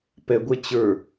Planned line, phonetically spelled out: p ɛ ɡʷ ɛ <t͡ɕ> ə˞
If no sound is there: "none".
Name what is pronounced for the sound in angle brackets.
t͡ɕ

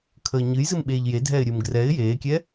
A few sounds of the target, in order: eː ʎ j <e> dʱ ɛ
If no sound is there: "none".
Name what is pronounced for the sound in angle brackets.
e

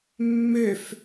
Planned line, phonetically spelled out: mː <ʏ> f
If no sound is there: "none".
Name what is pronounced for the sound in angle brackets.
ʏ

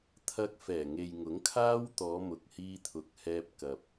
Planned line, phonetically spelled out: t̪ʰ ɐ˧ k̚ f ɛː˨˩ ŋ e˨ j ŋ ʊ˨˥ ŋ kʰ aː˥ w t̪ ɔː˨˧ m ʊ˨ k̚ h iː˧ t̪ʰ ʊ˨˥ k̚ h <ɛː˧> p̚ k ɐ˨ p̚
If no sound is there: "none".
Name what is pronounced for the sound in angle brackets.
ɛː˧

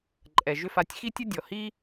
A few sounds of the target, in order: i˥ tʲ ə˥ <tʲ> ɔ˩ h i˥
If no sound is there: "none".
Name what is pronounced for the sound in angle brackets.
dʲ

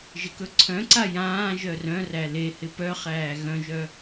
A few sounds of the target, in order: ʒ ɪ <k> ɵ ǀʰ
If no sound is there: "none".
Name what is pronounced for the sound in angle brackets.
k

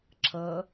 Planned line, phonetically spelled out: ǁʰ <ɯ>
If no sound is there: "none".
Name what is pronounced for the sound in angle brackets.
ɤ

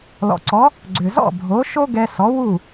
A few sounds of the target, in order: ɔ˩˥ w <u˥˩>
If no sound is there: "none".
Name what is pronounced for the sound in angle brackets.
u˥˩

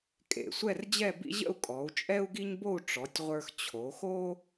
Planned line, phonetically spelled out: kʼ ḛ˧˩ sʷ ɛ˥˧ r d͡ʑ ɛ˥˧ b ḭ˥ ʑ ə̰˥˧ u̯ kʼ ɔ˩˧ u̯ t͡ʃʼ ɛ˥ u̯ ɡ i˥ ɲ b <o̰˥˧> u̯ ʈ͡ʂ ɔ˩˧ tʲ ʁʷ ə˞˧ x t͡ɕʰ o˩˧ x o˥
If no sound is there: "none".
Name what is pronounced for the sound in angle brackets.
o˥˧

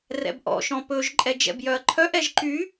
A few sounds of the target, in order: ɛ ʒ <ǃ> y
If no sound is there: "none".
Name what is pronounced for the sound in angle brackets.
ǃ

